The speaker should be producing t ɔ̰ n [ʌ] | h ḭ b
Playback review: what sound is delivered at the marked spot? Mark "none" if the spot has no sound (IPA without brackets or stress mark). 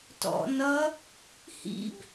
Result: ʌ